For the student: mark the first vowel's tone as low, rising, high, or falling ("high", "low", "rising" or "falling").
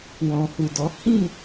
low